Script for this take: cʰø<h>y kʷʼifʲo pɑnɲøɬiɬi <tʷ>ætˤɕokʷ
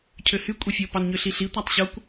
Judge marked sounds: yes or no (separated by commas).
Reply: yes, yes